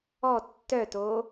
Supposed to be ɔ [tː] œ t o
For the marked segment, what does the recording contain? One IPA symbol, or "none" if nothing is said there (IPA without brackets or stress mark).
tː